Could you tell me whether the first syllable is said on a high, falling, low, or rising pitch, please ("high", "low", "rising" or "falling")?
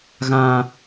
high